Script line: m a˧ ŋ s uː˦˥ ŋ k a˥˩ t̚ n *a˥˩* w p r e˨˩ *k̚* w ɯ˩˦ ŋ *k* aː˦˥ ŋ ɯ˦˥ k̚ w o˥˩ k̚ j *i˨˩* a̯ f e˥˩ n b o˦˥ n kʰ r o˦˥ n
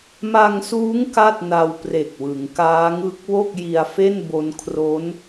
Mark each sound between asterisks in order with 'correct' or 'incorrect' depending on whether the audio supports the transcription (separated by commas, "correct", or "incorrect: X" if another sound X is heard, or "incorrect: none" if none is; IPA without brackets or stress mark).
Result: incorrect: a˧, correct, correct, incorrect: i˧